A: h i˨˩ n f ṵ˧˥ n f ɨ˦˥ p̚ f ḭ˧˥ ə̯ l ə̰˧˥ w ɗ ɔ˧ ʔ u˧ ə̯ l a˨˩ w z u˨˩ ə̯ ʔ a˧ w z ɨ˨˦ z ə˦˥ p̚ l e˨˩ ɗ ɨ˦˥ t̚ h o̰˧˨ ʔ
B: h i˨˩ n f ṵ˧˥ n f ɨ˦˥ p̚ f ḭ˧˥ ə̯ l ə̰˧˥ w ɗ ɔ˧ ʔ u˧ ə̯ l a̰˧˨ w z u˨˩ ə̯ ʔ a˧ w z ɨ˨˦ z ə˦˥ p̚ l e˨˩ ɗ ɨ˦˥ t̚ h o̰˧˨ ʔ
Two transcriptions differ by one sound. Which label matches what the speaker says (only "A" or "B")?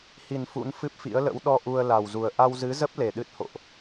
A